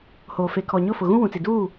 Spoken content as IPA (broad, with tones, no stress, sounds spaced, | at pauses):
h oː˨ f e˨ kʰ ɔ˨ ɲ ʊ˦˨ f ʊ˨ ɣ ũ˦ w ũ˨ t͡s i˨ d uː˦˨